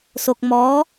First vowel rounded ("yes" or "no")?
yes